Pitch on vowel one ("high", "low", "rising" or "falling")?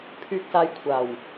low